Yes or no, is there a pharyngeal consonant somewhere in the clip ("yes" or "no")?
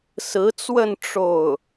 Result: no